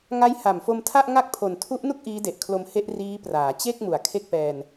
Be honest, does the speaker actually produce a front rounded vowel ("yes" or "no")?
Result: no